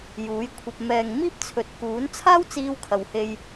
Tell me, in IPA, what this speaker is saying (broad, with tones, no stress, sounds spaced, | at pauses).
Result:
j uː˨˥ j kʷʰ ɐ˧ p̚ m ɛː˨ ŋ m iː˥ p̚ t͡sʰ ɵ˨ t̚ k uː˨˥ n t͡sʰ aː˥ w t͡s iː˧ w kʰ ɐ˨ w h e˧ j